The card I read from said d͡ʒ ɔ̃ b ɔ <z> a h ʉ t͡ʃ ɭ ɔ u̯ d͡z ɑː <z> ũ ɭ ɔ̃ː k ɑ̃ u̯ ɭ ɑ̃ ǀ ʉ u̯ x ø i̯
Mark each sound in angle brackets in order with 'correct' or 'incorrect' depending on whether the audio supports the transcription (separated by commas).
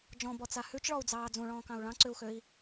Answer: incorrect, incorrect